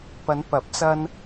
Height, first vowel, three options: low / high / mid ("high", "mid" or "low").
low